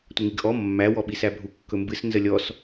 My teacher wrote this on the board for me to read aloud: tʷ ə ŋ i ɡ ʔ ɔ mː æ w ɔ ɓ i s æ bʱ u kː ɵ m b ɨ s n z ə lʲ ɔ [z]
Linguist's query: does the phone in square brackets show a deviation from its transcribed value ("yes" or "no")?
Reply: yes